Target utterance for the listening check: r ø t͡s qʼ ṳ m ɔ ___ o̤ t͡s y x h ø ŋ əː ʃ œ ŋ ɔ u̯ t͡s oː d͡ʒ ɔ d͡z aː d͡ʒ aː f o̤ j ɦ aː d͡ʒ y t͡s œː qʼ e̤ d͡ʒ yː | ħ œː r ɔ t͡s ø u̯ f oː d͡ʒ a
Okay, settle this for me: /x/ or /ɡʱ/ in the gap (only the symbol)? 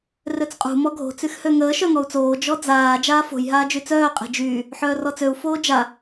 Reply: ɡʱ